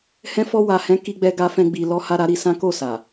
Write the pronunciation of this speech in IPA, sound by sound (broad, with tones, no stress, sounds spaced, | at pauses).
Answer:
h ɛ̃˦ f ɔ˦ w a˧ h ɛ̃˦ k i˦ ɡ͡b ɛ˦ ɡ a˦ f ɛ̃˦ ɡ͡b i˧ l ɔ˦ h a˦ ɾ a˦ ɾ i˧ s ã˦ k o˦˨ s a˨